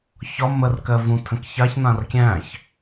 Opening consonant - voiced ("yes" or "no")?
no